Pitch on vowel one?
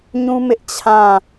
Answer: high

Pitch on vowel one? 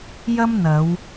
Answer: high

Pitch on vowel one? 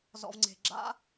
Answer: low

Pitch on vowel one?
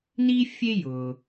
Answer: high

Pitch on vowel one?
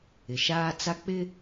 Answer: low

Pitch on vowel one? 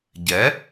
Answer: rising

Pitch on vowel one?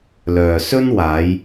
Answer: low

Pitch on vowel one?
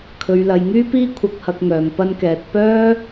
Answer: low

